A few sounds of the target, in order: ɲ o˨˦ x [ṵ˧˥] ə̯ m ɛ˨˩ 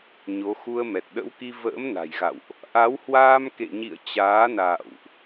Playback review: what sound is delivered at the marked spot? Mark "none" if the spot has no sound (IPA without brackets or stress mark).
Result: u˧